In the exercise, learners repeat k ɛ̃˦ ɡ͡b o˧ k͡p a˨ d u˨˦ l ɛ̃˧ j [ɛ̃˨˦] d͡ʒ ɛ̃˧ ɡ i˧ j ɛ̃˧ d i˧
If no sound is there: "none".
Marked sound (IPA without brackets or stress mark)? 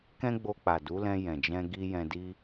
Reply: ɛ̃˨